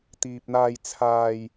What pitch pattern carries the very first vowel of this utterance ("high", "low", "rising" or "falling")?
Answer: low